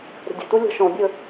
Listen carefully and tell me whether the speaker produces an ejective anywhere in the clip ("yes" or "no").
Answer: no